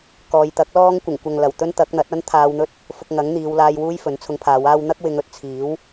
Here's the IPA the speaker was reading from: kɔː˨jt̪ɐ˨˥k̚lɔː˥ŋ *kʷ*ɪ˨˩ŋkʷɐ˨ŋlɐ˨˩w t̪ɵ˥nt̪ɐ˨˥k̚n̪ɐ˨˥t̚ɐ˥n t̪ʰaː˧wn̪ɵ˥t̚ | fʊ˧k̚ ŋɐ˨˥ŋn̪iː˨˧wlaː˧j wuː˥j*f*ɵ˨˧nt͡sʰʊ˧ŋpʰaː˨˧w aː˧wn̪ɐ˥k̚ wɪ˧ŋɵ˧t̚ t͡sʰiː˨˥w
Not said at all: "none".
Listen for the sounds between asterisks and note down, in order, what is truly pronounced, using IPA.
kʷ, f

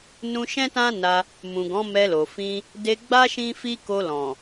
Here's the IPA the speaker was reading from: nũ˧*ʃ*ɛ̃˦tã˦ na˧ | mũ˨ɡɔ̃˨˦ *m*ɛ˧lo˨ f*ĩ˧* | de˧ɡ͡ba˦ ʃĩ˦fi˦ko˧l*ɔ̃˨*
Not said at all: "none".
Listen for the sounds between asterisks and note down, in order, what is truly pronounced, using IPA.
ʃ, m, ĩ˧, ɔ̃˨

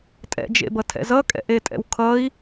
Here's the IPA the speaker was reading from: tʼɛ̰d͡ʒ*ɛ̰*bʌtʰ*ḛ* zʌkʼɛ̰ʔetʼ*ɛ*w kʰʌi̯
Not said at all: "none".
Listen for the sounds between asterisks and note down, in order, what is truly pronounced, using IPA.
ḛ, ɛ̰, ɛ̰

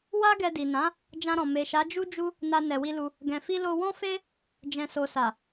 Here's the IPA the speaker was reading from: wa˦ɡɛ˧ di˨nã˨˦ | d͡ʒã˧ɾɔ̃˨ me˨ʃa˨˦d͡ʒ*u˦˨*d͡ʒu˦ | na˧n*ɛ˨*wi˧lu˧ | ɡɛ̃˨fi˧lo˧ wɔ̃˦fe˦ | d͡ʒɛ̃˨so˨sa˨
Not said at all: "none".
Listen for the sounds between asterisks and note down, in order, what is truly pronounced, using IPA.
u˦, ɛ˨

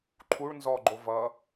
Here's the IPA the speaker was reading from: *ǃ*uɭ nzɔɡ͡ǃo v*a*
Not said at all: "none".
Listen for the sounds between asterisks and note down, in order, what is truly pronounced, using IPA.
ǃʰ, ʌ

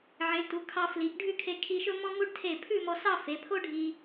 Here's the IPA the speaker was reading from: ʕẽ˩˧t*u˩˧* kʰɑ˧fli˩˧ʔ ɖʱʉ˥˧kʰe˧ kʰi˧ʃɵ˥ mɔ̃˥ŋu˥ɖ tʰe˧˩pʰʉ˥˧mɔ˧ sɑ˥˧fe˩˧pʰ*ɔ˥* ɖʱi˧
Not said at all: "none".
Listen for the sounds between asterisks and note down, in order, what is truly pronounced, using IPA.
u˩˧, o˥

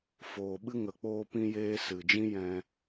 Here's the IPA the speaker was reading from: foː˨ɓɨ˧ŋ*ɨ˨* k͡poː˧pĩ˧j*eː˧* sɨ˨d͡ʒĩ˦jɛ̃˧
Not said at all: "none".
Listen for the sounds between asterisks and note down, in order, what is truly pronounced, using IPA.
ə˨, eː˧

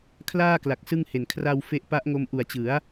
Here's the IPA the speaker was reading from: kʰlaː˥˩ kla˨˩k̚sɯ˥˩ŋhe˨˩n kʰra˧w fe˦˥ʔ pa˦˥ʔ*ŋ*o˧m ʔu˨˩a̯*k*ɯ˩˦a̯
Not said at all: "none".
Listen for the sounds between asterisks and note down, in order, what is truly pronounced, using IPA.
ŋ, t͡ɕ

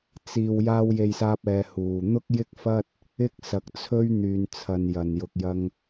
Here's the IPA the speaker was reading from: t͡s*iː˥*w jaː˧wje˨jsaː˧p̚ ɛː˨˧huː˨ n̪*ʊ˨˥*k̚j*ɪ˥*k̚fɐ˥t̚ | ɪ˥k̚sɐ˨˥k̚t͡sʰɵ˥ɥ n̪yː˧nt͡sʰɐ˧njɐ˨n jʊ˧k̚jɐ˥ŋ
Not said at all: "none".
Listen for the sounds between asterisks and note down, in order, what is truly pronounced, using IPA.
iː˨, ʊ˥, ɪ˥

